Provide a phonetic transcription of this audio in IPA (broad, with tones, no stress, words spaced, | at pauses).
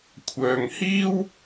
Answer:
kʷʰœː˨ŋhiː˥w